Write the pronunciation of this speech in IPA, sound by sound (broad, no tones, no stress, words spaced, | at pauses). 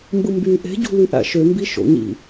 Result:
mbɯmby ʔe̤ɟṳly ʔæ̰ʃømbi ʃo̰ɲḭ